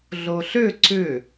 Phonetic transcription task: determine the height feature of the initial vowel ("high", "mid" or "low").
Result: mid